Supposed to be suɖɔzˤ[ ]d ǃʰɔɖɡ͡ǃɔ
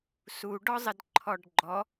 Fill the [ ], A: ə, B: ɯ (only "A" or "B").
A